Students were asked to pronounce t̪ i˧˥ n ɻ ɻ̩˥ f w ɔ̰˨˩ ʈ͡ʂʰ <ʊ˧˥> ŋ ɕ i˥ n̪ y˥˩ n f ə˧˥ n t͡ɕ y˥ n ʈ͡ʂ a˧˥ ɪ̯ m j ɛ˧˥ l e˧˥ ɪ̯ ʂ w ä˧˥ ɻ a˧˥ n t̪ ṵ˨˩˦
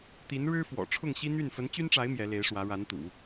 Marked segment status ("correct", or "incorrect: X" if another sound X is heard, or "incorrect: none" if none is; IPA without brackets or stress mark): incorrect: ʊ˥˩